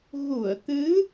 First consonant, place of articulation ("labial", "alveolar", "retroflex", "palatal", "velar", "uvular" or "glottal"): velar